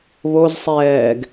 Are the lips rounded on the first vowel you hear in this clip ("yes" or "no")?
yes